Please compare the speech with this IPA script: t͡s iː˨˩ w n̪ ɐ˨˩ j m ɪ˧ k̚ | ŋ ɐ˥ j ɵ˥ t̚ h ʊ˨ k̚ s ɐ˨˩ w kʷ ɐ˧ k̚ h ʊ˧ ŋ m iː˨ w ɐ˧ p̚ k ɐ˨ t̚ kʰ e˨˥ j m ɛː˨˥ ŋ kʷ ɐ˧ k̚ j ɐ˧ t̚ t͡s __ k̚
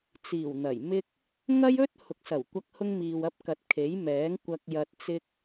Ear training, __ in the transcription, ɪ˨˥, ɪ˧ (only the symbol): ɪ˧